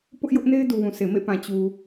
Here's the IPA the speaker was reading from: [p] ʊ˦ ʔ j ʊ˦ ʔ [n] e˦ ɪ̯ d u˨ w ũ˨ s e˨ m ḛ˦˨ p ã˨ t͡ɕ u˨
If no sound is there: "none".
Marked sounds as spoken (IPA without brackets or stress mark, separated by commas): p, n